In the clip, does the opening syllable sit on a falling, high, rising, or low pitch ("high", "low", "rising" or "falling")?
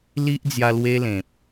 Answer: high